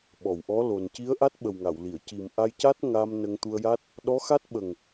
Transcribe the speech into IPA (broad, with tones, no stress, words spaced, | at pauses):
ɓɔ˨˩˨wʔɔ˧˥lo˨˩n ci˧˥ə̯ʔa˦˥t̚ɓə˨˩w ŋa˨˩˨wli˨˩˨ə̯ ci˨˩mʔa˧jca˦˥t̚ ŋa˧m nə˧ŋt̪u˧ə̯ja˦˥t̚ | ɗɔ˧˥xa˦˥t̚ ɓə˨˩ŋ